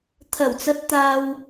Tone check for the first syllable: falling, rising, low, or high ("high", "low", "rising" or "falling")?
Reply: low